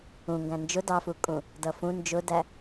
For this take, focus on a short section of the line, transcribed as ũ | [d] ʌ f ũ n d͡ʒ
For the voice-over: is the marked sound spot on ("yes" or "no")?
yes